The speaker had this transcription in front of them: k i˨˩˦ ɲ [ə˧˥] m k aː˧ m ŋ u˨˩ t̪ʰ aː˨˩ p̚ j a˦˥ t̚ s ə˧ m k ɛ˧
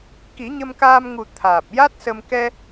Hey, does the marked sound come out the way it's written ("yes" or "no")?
no